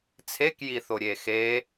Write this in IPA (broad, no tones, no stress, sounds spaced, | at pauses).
t͡sʰ e k j i θ o ɾʲ e x e